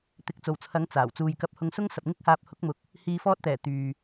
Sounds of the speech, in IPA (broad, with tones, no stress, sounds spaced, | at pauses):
t̪ ɪ˨˥ k̚ t͡s o˨˩ w t͡sʰ ɐ˨˧ ŋ t͡s aː˨˩ w t͡s uː˨ j k ɐ˧ p̚ h ʊ˧ ŋ s ʊ˥ ŋ s ɐ˨ p̚ ŋ ɪ˥ k̚ h aː˧ p̚ h ʊ˨˥ k̚ m ʊ˨˥ k̚ | h iː˧ f ɔː˥ t̚ t̪ ɛː˨˩ t̪ yː˨